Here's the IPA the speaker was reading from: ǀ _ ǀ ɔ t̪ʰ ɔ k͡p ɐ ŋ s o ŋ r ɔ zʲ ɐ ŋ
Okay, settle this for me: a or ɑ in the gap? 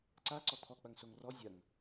a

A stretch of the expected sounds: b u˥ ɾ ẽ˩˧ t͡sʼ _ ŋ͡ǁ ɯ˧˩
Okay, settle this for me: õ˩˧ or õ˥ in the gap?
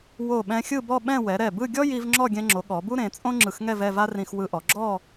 õ˥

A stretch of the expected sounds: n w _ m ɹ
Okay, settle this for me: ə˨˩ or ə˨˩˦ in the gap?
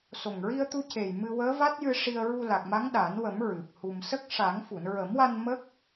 ə˨˩˦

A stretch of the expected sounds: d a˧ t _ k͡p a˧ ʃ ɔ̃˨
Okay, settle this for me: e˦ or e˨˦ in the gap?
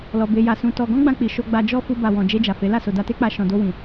e˦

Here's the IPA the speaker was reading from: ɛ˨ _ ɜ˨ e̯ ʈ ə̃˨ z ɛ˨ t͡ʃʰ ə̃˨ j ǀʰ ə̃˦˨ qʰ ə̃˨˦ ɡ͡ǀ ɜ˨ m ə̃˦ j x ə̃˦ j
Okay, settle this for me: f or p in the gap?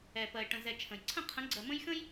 p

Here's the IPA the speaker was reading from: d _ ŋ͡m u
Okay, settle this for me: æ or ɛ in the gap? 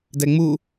ɛ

